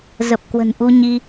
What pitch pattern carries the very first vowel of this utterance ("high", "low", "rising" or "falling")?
low